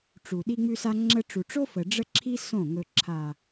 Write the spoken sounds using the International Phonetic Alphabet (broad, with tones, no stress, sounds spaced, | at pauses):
ʈ͡ʂ u˨ ɗ i˧ ŋ͡m ʉ˧ s a˧ ŋ͡ǁ ə˧ ʈ͡ʂ u˨ ʈ͡ʂ o˦ f ə˨ ɖ͡ʐ ə˦ ǁʰ i˦ s õ˦˨ ŋ ɵ˨ ǁʰ a˨